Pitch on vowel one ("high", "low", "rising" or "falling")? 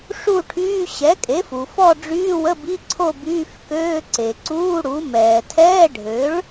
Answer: falling